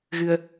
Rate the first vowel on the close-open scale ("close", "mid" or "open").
close